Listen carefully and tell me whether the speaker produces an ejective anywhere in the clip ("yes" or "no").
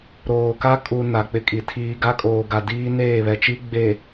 yes